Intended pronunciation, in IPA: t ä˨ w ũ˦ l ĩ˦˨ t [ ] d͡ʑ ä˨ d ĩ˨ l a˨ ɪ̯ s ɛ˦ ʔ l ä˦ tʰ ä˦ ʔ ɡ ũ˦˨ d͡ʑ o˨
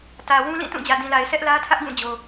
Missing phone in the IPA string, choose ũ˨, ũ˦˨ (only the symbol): ũ˦˨